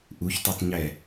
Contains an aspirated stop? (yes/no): no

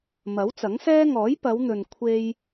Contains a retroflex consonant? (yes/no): no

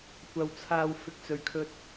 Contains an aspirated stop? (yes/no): yes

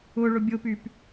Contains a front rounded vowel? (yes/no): yes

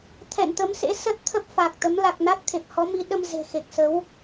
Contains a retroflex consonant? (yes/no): no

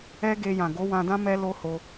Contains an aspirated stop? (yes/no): no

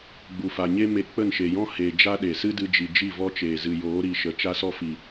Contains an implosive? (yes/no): yes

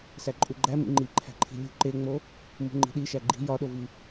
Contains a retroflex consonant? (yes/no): no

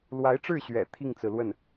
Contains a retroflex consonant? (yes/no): yes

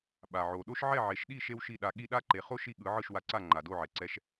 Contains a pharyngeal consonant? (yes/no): yes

